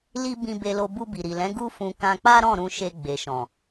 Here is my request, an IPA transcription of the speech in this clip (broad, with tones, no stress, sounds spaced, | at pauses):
l i˦ b ĩ˧ b e˧ l o˧ b u˧ b i˨ ɾ i˨ l ɛ̃˨˦ ɡ u˦ f ũ˧ k ã˧ k͡p a˦ ɾ ɔ̃˦˨ ɾ ũ˧ ʃ e˧ ɡ͡b e˨ ʃ ɔ̃˨